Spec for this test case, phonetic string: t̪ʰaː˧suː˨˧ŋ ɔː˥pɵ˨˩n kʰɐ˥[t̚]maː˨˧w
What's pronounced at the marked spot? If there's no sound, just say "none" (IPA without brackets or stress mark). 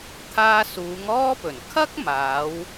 k̚